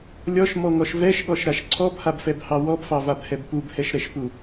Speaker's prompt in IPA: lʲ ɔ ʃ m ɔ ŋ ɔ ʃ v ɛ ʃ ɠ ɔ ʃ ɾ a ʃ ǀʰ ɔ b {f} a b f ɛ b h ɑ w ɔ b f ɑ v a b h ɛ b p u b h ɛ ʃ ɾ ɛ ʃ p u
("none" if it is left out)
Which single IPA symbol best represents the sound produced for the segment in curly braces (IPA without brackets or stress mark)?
h